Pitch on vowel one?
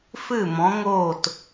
falling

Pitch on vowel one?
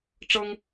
high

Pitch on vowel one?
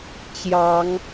rising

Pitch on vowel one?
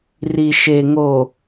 low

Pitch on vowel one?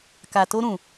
low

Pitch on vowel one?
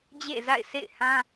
falling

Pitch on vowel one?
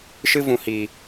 high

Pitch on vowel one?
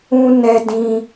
high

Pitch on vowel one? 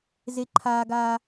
high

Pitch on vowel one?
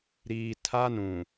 low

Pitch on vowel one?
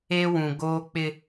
high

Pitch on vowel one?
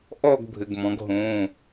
falling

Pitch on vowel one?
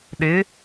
rising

